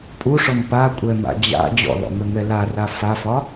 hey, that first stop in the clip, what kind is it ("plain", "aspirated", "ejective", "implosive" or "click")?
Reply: ejective